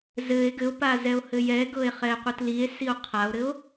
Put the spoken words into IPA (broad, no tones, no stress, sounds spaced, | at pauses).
z ɘ e̯ ɡ ɘ o̯ p a z ɛ o̯ h ɘ j ɛ ɡ ɤ e̯ χ ɛ e̯ qʷ ɜ t l i e̯ s i o̯ qʰ a o̯ ɾ ɘ o̯